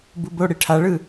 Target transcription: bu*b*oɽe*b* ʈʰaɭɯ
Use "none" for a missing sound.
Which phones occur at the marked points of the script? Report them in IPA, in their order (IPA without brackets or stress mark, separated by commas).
b, none